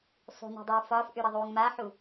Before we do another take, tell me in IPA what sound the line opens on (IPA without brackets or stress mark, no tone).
sˤ